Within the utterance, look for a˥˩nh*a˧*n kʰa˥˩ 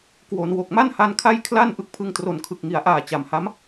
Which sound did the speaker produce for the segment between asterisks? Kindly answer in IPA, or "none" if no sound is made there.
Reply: a˧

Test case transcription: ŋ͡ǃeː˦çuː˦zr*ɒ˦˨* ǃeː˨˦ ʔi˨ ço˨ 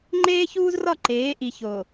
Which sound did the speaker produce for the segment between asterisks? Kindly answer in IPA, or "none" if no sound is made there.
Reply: ɒ˦˨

